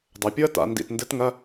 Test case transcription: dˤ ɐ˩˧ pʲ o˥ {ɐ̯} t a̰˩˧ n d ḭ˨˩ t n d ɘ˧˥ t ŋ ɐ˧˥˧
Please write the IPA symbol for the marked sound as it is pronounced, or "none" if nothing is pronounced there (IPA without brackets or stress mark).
ɐ̯